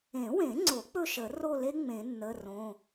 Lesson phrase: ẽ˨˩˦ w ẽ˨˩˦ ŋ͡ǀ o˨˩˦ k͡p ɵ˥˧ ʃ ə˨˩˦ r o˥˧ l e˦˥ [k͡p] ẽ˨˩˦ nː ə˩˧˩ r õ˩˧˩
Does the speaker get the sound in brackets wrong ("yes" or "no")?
yes